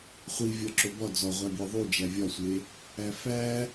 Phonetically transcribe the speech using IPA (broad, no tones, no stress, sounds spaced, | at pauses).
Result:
χʷ i vʲ ɒ ǁ o b ɒ d͡z ɒ ʁʷ æ bʲ e ðˤ u d͡ʒ æ vʲ ɒ sʷ e | æ f æ